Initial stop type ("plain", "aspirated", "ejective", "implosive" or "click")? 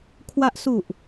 aspirated